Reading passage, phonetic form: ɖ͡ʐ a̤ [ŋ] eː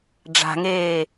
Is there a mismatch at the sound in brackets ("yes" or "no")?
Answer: no